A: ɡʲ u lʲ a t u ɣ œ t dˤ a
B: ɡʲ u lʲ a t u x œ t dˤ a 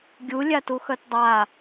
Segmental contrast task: B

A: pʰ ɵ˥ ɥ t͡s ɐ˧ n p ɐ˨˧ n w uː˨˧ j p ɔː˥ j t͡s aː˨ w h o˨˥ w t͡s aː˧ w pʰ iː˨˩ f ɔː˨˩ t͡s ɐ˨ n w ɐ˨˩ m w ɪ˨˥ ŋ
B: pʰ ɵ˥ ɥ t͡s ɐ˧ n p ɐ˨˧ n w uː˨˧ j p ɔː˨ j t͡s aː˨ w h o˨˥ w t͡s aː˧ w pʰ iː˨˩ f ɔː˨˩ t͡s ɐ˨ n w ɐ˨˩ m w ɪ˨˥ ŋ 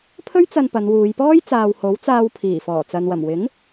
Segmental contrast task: A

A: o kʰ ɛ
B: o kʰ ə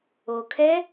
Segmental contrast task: A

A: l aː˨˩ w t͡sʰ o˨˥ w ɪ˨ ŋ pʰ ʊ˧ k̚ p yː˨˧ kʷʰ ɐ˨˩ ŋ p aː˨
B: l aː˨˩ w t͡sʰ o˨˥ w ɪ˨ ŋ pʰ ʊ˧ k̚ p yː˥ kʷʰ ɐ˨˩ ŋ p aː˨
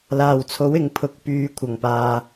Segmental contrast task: A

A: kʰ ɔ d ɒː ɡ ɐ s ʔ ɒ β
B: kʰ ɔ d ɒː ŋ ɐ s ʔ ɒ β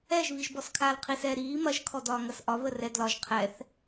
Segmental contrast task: B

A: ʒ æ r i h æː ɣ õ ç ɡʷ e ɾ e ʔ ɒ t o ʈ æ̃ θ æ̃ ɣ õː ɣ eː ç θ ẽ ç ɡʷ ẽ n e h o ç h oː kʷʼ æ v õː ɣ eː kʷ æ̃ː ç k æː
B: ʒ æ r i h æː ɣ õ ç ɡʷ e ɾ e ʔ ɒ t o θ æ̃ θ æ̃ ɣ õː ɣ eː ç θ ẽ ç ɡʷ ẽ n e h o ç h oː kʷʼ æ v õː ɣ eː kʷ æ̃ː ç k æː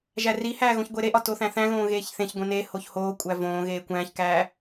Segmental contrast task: B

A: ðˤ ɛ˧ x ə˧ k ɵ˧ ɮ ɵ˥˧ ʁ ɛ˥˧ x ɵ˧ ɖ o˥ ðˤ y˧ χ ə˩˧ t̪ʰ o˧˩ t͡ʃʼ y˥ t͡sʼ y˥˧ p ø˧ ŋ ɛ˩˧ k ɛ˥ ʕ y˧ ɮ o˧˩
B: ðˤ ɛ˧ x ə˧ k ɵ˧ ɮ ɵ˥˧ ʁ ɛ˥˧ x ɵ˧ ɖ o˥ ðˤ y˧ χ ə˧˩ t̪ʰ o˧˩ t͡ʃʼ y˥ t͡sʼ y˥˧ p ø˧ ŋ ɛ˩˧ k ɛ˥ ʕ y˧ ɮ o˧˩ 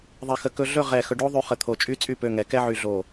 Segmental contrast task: B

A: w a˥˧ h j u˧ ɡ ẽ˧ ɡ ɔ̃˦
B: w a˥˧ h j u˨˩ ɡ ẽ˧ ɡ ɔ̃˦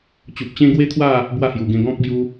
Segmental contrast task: B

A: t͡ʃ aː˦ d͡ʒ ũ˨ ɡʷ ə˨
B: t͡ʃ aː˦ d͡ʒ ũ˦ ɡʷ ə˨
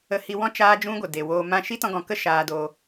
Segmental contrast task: B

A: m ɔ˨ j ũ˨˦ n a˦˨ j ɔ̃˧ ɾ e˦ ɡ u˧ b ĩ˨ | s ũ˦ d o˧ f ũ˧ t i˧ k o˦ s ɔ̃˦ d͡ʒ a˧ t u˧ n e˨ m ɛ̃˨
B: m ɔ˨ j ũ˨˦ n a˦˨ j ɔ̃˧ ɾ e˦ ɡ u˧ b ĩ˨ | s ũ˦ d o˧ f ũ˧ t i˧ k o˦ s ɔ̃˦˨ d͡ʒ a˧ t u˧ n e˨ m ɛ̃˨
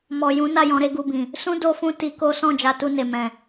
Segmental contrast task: B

